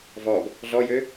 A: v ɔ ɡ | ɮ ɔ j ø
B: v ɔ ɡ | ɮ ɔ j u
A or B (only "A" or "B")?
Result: A